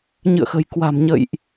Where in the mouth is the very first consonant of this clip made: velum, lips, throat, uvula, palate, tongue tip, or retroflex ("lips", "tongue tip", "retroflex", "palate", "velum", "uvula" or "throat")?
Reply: palate